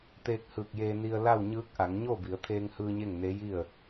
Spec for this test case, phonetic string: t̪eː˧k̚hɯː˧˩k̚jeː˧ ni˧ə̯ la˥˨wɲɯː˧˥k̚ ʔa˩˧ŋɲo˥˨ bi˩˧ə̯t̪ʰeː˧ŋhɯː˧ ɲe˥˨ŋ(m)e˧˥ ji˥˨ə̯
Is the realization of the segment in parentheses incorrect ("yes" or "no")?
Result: yes